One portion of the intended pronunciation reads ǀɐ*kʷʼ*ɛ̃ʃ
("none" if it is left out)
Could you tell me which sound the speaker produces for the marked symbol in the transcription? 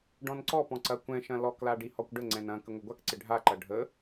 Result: kʷ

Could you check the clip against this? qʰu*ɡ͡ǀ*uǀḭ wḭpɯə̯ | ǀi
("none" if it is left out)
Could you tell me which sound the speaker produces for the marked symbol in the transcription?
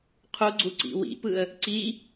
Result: ɡ͡ǀ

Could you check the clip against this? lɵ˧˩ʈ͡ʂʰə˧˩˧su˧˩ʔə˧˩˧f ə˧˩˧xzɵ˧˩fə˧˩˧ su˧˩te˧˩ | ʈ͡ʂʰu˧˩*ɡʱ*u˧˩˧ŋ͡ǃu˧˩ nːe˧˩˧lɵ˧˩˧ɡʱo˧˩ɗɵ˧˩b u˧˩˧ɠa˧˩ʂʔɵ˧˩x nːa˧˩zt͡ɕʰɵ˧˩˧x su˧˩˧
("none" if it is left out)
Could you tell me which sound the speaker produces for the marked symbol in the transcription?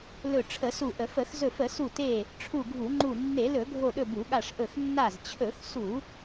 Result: ɡʱ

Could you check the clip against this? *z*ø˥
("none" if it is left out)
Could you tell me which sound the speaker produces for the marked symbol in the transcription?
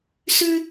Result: s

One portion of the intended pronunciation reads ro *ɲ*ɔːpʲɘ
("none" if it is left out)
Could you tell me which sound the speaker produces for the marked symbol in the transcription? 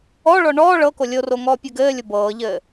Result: ŋ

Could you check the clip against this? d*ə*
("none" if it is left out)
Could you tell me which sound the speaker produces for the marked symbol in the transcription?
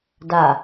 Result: a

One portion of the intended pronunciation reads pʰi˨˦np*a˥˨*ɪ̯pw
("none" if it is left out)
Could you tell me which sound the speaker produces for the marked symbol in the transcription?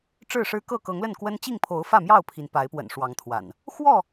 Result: a˨˦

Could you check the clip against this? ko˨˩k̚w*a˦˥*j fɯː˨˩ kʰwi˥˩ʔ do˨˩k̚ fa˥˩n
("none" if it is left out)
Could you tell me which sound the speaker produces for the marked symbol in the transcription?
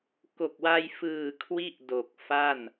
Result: a˧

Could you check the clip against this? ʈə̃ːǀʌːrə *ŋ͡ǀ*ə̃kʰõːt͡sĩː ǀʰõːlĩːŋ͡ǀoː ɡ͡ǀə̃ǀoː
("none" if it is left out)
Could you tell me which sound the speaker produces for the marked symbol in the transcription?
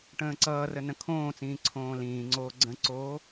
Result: n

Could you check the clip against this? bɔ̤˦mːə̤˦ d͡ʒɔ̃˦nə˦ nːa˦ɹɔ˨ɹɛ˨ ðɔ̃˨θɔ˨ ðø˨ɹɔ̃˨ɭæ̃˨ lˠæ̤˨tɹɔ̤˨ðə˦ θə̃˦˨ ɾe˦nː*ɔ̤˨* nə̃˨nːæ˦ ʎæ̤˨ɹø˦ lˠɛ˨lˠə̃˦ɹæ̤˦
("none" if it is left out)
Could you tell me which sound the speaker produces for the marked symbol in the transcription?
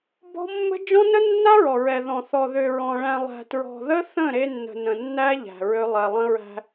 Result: ə̤˨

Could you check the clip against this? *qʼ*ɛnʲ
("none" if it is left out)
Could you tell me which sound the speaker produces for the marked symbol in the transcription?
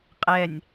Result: qʼ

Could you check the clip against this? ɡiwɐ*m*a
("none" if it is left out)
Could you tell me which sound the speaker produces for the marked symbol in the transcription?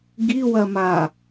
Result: m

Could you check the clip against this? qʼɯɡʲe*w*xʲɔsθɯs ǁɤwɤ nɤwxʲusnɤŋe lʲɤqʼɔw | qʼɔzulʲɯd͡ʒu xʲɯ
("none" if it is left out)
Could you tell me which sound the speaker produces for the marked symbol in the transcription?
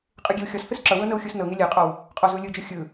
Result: w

